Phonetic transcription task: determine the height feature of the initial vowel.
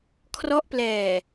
mid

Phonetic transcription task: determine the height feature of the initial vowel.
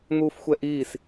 high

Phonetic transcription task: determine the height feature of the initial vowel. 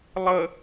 mid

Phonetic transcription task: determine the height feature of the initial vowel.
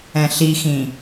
mid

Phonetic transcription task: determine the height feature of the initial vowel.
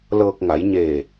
mid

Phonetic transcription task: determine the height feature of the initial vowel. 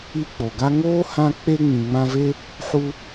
high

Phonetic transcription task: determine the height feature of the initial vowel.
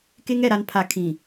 mid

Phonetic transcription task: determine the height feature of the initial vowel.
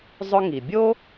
high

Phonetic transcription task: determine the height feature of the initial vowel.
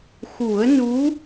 high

